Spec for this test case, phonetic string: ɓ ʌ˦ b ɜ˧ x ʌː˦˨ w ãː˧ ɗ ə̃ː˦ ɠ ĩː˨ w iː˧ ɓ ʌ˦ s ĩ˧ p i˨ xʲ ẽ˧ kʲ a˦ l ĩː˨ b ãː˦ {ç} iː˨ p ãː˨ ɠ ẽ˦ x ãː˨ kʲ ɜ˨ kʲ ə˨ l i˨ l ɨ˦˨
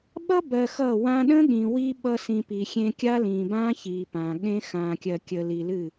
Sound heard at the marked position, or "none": ç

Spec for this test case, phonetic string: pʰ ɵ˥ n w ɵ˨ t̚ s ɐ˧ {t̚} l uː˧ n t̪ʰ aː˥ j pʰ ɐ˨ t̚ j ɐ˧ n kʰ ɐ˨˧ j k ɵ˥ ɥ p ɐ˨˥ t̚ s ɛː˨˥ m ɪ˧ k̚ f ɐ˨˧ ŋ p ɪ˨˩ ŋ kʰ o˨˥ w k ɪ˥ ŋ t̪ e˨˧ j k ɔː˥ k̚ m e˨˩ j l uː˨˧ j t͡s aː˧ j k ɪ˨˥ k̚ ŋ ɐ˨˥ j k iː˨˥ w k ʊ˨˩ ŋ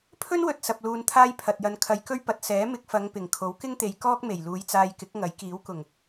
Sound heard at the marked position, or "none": p̚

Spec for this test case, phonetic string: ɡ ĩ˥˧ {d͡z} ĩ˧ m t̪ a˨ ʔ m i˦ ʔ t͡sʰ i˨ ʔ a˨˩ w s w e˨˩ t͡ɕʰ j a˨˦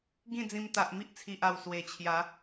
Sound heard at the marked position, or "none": d͡z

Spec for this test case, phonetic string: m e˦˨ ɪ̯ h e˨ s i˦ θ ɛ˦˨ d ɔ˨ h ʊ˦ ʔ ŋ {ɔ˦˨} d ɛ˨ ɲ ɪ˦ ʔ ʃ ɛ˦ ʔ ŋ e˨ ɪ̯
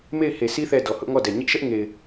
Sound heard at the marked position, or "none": ɔ˦˨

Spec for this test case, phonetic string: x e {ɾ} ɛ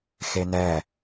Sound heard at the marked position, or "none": n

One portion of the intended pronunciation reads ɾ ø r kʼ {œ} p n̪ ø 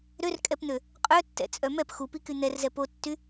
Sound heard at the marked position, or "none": ɛ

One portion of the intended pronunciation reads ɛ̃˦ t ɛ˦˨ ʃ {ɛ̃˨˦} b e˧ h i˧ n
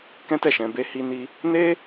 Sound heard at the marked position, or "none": ɛ̃˧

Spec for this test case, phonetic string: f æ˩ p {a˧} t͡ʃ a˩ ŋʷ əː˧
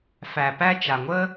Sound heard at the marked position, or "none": æ˧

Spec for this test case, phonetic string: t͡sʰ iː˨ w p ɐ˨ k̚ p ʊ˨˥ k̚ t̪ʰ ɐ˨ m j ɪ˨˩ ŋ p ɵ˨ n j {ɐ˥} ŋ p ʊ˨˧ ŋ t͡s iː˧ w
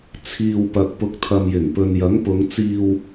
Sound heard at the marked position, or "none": ɐ˨˥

